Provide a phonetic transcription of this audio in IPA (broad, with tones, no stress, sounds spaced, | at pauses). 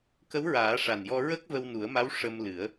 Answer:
k ə˧˥ w ɹ aː˨˩˦ ʂ a˨˩ n j ɔ˧ ɹ ə˦˥ k̚ v ə˧ w n u˨˩˦ ə̯ m a˧˥ w ʂ ə˧ m l ɨ˨˩˦ ə̯